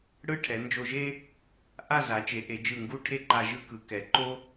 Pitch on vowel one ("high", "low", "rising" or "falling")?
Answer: falling